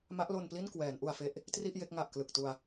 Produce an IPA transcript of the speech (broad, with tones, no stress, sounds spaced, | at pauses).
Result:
m a˦˥ ʔ l o˧ n p l i˥˩ n k w ɛː˩˦ n ʔ u˧ a̯ f e˦˥ ʔ | t r i˥˩ ʔ j e˥˩ k̚ ŋ a˨˩ ʔ k l ɯ˨˩ k̚ t u˧ a̯